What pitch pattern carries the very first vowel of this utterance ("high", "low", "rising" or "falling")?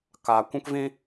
low